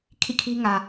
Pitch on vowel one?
falling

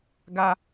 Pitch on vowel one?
high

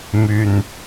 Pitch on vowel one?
low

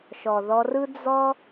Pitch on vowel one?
low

